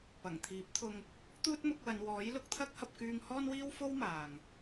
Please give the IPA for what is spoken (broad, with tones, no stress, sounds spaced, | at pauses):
p ɐ˨˩ ŋ t̪ʰ iː˨˥ p̚ t̪ʰ ʊ˧ ŋ | t̪ uː˥ t̚ m ʊ˨˥ k̚ w ɐ˨˧ n w ɔː˨˥ j l ʊ˧ k̚ t̪ʰ ɐ˥ k̚ h ɐ˧ p̚ k yː˧ ŋ h ɔː˥ n w iː˥ w f o˥ w m aː˨ ŋ